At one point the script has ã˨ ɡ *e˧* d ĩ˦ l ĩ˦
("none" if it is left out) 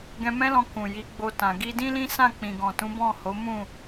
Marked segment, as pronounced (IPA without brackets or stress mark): i˧